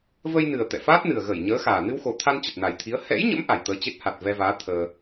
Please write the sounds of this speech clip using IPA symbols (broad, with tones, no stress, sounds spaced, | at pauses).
v ə˧ j n ɨ˨˩ ə̯ t̪ ɛ̰˧˨ f aː˦˥ t̚ n ɨ˨˩ ə̯ ɣ ə˧˩ j ɲ əː˨˦ x aː˨˩ n ɨ˧ w x o˨˩ t̪ʰ a˧ n t͡ɕ ə˨˩ t̚ n a˨˩ j t̪ʰ i˨˦ ə̯ h ɛ̰˧˥ j ɲ ə̰˧˥ m ʔ a˧˩ j t̪ əː˧ t͡ɕ e˦˥ t̚ h a˨˩ t̚ v ɛ˧ v aː˨˦ t̪ʰ əː˧